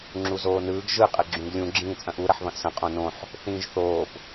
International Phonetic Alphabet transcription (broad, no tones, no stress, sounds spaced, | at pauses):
ŋ͡ǁ u z oː n ɯː ɡ ʒ ɯ qʼ ɘ ɡ͡ǁ ũ ɡ lʲ ũ ɡ͡ǁ ĩː t͡sʼ ɐ̃ ʔ u ɾ ɐ ħ β ɐ̃ ʔ s ɐ̃ qʼ õ n õ ħ | θ ĩː ʒ θ oː p